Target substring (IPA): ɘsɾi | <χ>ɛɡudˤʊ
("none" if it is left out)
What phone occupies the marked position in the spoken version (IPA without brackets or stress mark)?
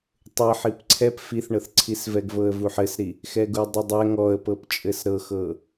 x